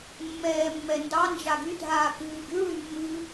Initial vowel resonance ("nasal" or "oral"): oral